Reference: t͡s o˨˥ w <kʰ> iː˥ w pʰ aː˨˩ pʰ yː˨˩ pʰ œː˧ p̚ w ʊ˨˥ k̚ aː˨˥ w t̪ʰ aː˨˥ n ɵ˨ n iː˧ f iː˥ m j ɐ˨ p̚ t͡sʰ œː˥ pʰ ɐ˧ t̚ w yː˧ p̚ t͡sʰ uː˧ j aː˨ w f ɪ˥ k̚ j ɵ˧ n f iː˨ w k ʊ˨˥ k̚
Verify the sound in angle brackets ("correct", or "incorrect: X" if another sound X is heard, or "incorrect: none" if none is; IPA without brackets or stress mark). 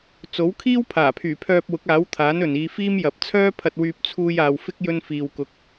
correct